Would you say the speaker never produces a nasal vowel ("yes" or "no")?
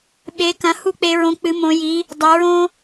no